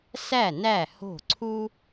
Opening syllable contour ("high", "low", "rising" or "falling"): falling